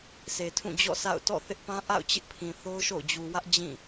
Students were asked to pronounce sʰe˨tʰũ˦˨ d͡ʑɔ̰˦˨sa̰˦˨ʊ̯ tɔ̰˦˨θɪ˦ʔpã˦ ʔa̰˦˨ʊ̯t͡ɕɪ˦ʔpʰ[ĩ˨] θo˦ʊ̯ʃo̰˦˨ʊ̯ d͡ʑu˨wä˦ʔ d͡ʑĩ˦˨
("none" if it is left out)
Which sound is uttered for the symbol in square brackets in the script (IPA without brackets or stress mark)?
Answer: ĩ˨